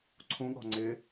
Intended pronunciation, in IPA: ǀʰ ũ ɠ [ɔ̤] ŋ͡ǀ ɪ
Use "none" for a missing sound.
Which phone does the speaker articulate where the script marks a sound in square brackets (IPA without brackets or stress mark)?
ɔ̤